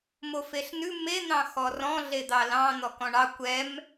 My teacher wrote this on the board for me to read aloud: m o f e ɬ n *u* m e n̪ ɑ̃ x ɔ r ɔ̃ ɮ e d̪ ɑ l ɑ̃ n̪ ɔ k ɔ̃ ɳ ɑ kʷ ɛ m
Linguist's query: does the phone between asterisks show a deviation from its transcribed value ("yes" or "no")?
yes